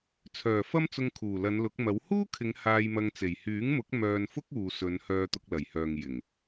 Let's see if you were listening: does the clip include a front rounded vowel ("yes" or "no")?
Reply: yes